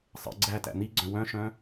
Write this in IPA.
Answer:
sˤ ə̰ ɡ͡ǀ æ t æ̰ n̪ i ɡ͡ǀ œ̃ w œ̃ ʃ œ̃ː

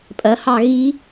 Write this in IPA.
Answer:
pʼ ɐ h ɑ ɣ i

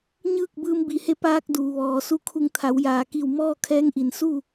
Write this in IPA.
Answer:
ɲ ɯː˥˨ k̚ b ɯː˧ m b i˩ h e˧˥ p aː˧ k̚ d uː˩ ʋ ɔː˩ s u˧ kʰ u˧˩ ŋ t̪ʰ a˩˧ w j aː˩ k i˧˩ w m ɔː˥˨ kʰ ɛː˧˥ ŋ ʔ i˩ n s u˥˨

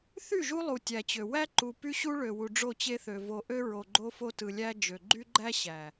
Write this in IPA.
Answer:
θ y˦˨ ʒ u˦ lˠ u˨ tʲ æ˨ t͡ɕ ø˨ w æ˦ ǃ u˨ p y˦ ɕ u˦ ɭ ø˨ w u˨ ɖ͡ʐ o˦˨ t͡ɕ e˦ θ ø˨ v o˨ ʔ ø˦ ɹ o˨ ɡ͡ǃ o˦ f o˦ t ɯ˨ lʲ æ˦ d͡ʒ ø˨ ɡ͡ǃ y˦ ɡ͡ǃ æ˦ ɕ æ˨

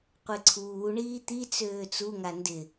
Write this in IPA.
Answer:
qʷ e ǀʰ uː ɳ iː t̪ i t͡s øː t͡s u ŋ a n d ɪ

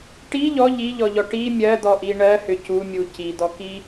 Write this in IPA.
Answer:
ʈ i ʎ ɔ ʎ i ʎ ɔ ʎ ɔ ʈ i mʲ ɜ d̪ ɔ ʔ i ɳ ɜ h ʏ c u mʲ u c i d̪ ɔ k i

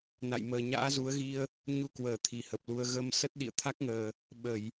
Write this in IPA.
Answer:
n a̰˧˨ j m əː˨˩ ɲ a̰ː˧˥ z u˨˦ ə̯ ɣ i˧ ə̯ | ɲ u˧ k w əː˧˩ t̪ʰ i˨˩ h ə˨˩ p̚ l u˧ ə̯ ɣ ə˧ m s ə˦˥ t̚ ɗ ḭ˧˨ ə̯ t̪ʰ a˦˥ k̚ ŋ əː˨˩ | ɓ ə˧˩˨ j

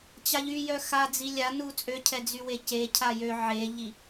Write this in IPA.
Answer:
t͡ɕ a ʎ y j œ x a d͡z i lʲ a n u t͡sʼ ø cʰ ɛ d͡z y w e c e cʰ a j ø ʕ e ʎ i

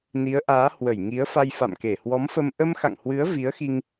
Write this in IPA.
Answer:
n i˨˦ ə̯ ʔ aː˨˦ h w ə˧˩ j ŋ i˨˦ ə̯ f a˧ j f a̰˧˨ m k e˧˩ h w ɔ˨˦ m f ə˧ m ʔ ə˧ m x a̰˧˨ ŋ h w ɨ˨˦ ə̯ v i˨˦ ə̯ x i˧ ŋ

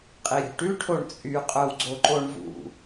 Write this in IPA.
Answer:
qʼ i ɾʲ o̤ ʈ ʉ ʈʰ o ɳ t͡sʼ y qʼ œ w ɡ͡ǀ o ǃ o ɳ v ṵ

